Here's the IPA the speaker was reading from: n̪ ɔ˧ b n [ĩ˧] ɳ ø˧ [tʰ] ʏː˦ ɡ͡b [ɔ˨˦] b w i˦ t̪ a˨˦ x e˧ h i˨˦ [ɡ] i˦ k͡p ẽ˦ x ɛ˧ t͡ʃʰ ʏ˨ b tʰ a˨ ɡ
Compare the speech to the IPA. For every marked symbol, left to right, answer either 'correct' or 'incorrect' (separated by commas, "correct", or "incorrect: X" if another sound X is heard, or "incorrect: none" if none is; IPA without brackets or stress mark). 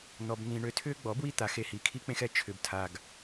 correct, correct, correct, incorrect: kʰ